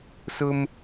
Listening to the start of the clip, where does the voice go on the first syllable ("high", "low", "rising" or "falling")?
high